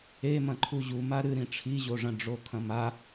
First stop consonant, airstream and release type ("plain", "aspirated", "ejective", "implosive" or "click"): click